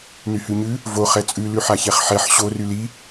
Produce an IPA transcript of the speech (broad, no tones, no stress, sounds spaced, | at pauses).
n y h ʉ ɲ ʉ | v o χ ɛ t͡sʼ ʉ l ʉ ħ a ç ɛ χ ħ ɛ ħ ɕ o r y l i